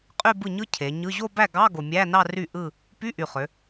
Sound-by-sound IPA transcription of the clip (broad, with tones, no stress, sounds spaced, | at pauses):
qʼ y˥˧ b ɯ˥˩ ɲ ɯ˥ cʰ e˩˧ ɲ ɯ˧˥˧ ʑ o˥˧ b æ˥˩ ɡ ɑ˧˥˧ ɡ o˨˩ mʲ æ˧˥˧ n ɑ˥˧ r y˥˩ ʔ ɯ˥˧ | p y˧˥˧ ʔ y˨˩ χ ø˩˧